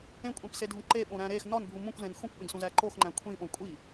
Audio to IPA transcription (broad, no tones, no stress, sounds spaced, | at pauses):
ẽ kʷʼ ẽ p s e dʱ ũ ǃ e ɓ õ ɾ æ̃ ɾ e x n ɒ n bʱ u m ũ kʷ z ẽ n x ũ kʷ ɓ ẽ ɡ s ũ z æ ǃ o x ŋ͡ǃ æ̃ kʷʰ ĩ ɓ õ kʷʼ i